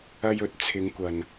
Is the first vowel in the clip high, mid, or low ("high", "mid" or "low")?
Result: low